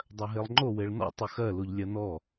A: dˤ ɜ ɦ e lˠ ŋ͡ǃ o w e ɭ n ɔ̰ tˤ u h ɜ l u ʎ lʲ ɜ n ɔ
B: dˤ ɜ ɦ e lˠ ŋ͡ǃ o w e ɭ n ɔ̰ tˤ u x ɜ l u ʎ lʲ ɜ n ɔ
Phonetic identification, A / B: B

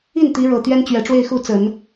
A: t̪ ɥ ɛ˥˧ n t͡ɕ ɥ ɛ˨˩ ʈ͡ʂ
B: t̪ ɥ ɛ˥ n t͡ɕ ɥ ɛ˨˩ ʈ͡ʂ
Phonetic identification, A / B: B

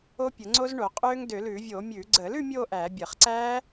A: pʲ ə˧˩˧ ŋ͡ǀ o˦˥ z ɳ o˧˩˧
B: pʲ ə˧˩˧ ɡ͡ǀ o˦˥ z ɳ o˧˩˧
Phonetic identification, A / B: A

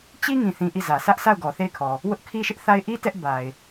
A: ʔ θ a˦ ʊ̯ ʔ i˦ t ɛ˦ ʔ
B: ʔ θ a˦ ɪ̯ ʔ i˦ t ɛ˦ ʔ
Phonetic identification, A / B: B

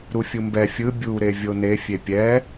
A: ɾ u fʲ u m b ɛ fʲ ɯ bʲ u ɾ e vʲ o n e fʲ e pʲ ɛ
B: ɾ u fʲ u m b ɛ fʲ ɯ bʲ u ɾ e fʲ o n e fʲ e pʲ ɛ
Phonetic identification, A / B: A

